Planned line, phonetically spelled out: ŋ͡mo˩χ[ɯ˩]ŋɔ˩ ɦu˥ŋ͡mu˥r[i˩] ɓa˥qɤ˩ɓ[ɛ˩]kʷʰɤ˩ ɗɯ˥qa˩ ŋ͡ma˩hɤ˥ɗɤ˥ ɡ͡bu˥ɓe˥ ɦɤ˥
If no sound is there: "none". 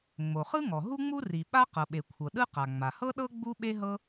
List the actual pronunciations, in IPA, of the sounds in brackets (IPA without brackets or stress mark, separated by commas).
ɯ˥, i˩, e˩